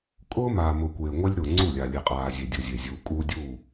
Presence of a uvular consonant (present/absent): present